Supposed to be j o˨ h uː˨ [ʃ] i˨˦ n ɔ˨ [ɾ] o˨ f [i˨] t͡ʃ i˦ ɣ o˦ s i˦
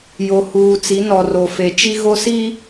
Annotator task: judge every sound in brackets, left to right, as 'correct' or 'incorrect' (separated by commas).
incorrect, incorrect, incorrect